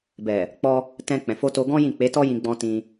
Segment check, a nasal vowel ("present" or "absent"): present